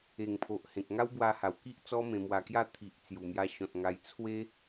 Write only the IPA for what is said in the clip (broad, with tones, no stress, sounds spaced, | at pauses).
e˨˩ ŋ pʰ o˨ ʔ h ẽ˨ k̚ ŋ a˦ w b w a˧ h a˨˩ w k i˦ ʔ t͡s ɔ˦ m ẽ˧ m w a˧ k j a˥˧ t̪ʰ i˨ ʔ t͡s j u˨˩ m j a˧ ɕ ɔ̃˨ t̚ ŋ a˧ j t͡sʰ w e˦